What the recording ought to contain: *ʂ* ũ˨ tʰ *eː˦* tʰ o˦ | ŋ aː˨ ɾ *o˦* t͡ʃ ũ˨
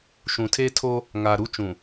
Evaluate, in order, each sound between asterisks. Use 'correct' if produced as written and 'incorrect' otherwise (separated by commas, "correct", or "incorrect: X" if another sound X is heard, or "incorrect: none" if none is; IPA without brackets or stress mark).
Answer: incorrect: ʃ, correct, incorrect: u˦